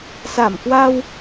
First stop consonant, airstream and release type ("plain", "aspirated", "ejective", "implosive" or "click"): plain